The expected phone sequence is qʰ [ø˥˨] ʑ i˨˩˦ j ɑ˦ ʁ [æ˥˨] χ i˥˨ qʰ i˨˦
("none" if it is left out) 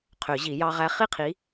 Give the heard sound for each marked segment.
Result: ø˨˩˦, æ˦

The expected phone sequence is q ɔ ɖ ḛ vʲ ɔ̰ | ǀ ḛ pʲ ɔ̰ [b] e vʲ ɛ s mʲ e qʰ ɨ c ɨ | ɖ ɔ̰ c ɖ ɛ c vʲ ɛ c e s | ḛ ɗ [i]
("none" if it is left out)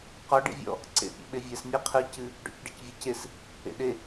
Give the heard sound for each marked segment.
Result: ɓ, e

